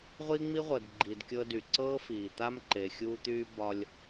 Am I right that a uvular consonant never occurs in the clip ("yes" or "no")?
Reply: no